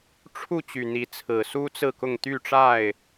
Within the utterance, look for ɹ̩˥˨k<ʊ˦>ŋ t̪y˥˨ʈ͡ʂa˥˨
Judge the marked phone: incorrect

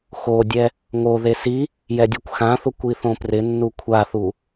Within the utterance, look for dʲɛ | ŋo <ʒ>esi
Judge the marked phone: incorrect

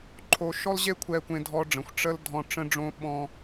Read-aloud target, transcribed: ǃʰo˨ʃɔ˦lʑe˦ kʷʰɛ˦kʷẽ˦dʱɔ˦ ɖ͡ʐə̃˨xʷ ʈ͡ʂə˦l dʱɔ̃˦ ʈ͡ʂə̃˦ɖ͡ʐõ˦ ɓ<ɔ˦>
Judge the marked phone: incorrect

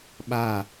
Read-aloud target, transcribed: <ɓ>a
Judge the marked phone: correct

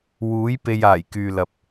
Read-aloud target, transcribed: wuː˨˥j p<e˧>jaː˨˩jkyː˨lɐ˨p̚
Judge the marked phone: correct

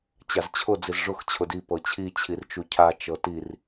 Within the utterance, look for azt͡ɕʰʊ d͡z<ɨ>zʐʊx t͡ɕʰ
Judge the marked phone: incorrect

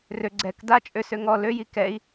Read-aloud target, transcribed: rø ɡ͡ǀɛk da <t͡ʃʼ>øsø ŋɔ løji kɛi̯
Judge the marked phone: correct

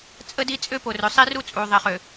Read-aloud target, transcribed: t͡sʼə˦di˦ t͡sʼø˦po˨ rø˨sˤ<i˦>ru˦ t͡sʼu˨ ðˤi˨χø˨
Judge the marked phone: correct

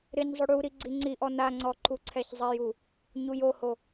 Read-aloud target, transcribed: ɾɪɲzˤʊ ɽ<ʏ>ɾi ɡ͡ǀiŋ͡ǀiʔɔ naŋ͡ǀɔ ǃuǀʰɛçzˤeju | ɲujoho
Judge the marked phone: incorrect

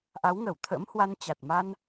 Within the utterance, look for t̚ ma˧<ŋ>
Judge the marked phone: incorrect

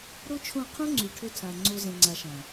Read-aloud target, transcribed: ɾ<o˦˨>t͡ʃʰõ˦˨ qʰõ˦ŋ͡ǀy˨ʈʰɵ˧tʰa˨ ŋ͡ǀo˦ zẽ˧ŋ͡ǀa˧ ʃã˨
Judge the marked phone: incorrect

